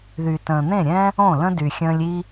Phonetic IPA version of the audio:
ð y˨ t ə̃ː˨ n̪ ẽ˦˨ ɾʲ ɛ̃ː˦ | õ˦˨ l ə̃˦ d y˨ xʲ ə̃ː˧ lʲ iː˧

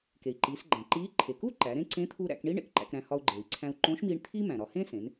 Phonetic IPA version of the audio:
k e˩ i̯ ǃ iː˩˧ s ɡ͡ǃ æ̃˩ ǃ iː˧˥ ǃʰ e˩ k u˥ ǃ æ˩˧ ɾ ẽ˥ ǀ ẽ˧˥ t̪ʰ u˧ ɾ æ̰˩˧ k ɳ i˥ ɳ ḛ˧ k ǃ æ̰˧ k ɾ æ̃˧ h ɒ˧ u̯ ɡ͡ǃ eː˩ i̯ ǀʰ æ̃˧ u̯ ǃ õ˧˥ ʃ m iː˧ ɳ t̪ʰ iː˥ m æ̃˩ ɾ ɒ˩˧ h ẽ˥ s ẽ˩˧ n

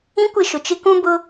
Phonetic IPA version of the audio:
ĩ˦ kʷ ɪ˦˨ ʃ ʊ˨ t͡ʃ ɪ˦ k ũ˦ b ʊ˦

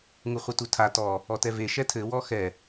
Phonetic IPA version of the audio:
ŋ u χʷ ɘ t u tʰ a t ɔ | ɔ t ɛ v e ʃ ɛ tʰ ɘ w ɔ x ɛ

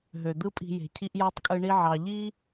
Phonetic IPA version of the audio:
ɦ ø˩ d̪ ɯ˦ pʼ i̤˨ j e̤˩ cʰ i˦ ʔ j ɑ˥ tˤ kʼ ɯ˦ ɳ i˥ ʕ ɑ˨ ʎ i˥

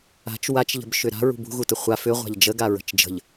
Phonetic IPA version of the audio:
a̤ t͡ʃ w a t͡ʃ ʎ ə̤ b ʃ ʏ ɾ a̤ ɹ ṳ b ṳ ɣ u t ə χʷ a f ʏ ʁʷ a̤ ʎ d͡ʒ ə ɡ a ɹ ə̤ t͡ʃ d͡ʒ ə̤ ʎ

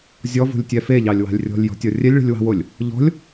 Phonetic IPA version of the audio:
zʲ ɔ v ṳ lʲ tʲ ɛ f e ʎ ɑ lʲ w ɑ̤ lʲ rʲ ɔ̤ lʲ j ɔ̤ tʲ ɔ rʲ ɛ lʲ ɭ i̤ lʲ w ɑ̤ w o lʲ | ʎ ɔ̤ lʲ

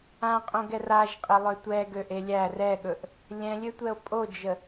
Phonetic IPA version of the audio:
ã qʼ õ ɡ ɛ r a ʒ qʼ ə lˠ ø tʷ ɛ ɡ ø ʔ e lʲ æ r ɛ ɠ ɵ ʔ | lʲ ɛ̃ lʲ ø tʷ ɛ o̯ pʼ o d͡ʒ ə

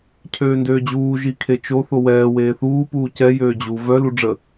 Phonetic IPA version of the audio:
cʰ øː n d øː d͡ʑ uː ʒ i kʰ e t͡ʃ o θ o w ɛː w eː θ uː p uː c ɛ j øː d͡ʑ u v œ l u ɖ͡ʐ ə

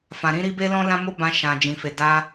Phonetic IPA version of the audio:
f ã˨ ɾ ĩ˧ ɾ i˧ b e˦ l ɔ̃˦ l ã˦ m o˦ b ã˧ ʃ ã˨ d͡ʒ ĩ˨ f e˨ d a˧

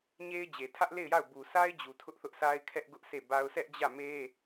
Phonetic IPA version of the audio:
ɲ e˦ ɪ̯ d͡ʑ e˨ tʰ ä˦ ʔ l e˦˨ ɪ̯ j a˦˨ ʊ̯ b u˨ sʰ a˦ ɪ̯ d͡ʑ u˨ tʰ ʊ˦ ʔ θ ʊ˦ ʔ sʰ a˦ ɪ̯ kʰ ɛ˦ ʔ ɡ ʊ˦ ʔ s e˦˨ b a˦ ʊ̯ sʰ ɛ˦ ʔ d͡ʑ ä˦˨ m e˦

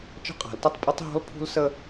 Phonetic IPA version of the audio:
t͡ʃ ə̤˦ qʼ a̤˨˦ l t ə˦ tˤ pʼ ə˦ tˤ ɦ ɔ̤˦ l pʰ ṳ˦ l s ə˦

